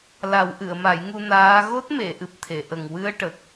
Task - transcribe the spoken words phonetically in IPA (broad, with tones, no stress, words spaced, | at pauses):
la˨˩˦wʔɨ˨˩˨ə̯ ma˨˩˦jŋu˧ naː˧˥ ɣo˦˥t̚me˨˩˨ʔɨ˨˩p̚ t̪ʰe˨˩˨ʔə˨˩ŋ wɨ˧ə̯ʈə˨˩k̚